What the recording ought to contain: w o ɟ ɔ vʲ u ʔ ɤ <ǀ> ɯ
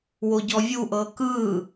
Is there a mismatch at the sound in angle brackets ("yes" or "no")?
yes